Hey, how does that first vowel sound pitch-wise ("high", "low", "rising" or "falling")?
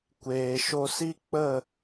low